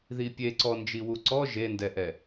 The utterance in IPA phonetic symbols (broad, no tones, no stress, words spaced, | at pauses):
ðipʲeǀɔ nd͡ʒiwuǀɔ ʒendɛʔɛ